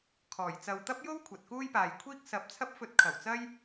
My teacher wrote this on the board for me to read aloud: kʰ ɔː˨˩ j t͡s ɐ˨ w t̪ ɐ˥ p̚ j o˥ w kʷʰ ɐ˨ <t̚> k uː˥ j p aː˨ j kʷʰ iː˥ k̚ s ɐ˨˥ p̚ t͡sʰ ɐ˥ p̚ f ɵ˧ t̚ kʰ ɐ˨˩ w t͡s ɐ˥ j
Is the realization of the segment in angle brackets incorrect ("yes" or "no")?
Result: no